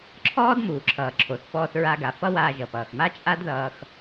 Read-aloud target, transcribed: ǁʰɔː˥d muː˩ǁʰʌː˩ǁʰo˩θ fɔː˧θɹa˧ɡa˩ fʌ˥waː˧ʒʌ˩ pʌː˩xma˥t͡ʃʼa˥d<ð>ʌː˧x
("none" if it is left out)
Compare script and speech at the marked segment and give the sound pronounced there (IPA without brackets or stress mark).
ð